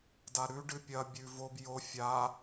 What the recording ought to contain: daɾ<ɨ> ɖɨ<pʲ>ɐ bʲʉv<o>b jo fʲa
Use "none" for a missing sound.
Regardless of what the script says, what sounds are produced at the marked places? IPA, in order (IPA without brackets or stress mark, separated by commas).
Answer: ʉ, pʲ, o